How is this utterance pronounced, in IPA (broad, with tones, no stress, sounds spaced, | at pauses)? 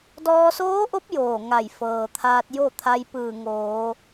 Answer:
d ɔː˧ s oː˧˥ ʔ o˧˥ p̚ j oː˧˩ ŋ a˧˩ j f ɤː˩ t̪ʰ aː˧ t̚ j o˥˨ t̪ʰ a˧ j p ɯː˧˩ ŋ oː˩˧